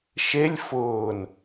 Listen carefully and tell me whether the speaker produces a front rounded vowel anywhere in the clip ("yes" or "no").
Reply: no